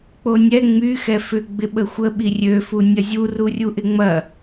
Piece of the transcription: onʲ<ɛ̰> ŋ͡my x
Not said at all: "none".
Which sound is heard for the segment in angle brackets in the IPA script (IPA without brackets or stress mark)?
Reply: ɛ